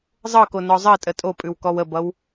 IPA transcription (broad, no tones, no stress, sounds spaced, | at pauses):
zˤ ɤ k o n ɔ zˤ ɜ tʼ ə tʼ o pʼ ʉ w k ɔ w ə b ʌ w